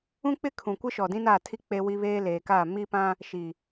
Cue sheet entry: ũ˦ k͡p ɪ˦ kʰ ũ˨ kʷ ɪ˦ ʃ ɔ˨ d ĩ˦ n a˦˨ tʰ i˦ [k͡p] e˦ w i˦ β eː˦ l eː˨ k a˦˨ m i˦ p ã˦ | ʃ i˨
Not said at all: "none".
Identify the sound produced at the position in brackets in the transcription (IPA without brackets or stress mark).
k͡p